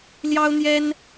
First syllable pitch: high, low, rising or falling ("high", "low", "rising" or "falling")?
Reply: high